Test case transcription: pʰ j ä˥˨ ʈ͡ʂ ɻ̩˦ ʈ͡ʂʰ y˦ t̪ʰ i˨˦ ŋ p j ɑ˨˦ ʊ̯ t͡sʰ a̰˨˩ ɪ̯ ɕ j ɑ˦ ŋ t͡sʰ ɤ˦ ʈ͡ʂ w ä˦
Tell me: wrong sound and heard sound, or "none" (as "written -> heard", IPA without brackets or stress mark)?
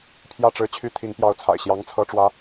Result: ʈ͡ʂʰ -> t͡ɕʰ